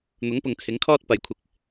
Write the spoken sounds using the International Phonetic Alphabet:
n̪ ʊ˨˥ ŋ p ʊ˨ ŋ t͡sʰ ɪ˨˥ ŋ kʰ ɔː˥ t̚ p ɐ˨˧ j kʷʰ ɪ˧ k̚

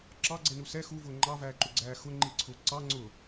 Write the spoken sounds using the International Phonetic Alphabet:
ǁ ɑ ɡ͡ǀ ɛ n u s ɛ x u v ʊː ŋ͡ǃ ɑ v æː ǃ u ɡ͡ǀ æː x ʊ ŋ͡ǃ i ǀʰ ʊː ǀ ɑ ŋ͡ǀ ʊː

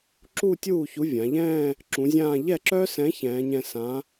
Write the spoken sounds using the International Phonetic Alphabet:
ǁ u˥˧ tʲ uː˥˩ ç u˨˥ vʲ ã˩˧ ʎ ɛ̃ː˥˧ | ǁ ũ˨˥ zʲ ãː˥˧ ʎ ɛ˥˩ ǁ œ˦˥ s ɛ̃˨˥ ç ɛ̃ː˨˥ ɲ ɛ̃˥˧ s ã˨˥

